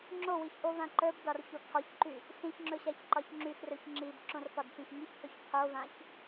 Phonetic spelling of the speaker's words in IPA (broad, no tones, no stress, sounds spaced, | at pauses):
ŋ͡ǁ o w i ç ʔ o v ã ǃ ə˞ b d ɒ r ç o kʰ ɒ ç ǃ y | s ĩ ç ŋ͡ǁ ɵ ɕ a ç ǃ ɒ ç ŋ͡ǁ y x r ɵ ç ŋ͡ǁ i b ǁ õ r f ɒ d f ĩ x ŋ i ç pʰ ɵ ç qʰ o v ã ç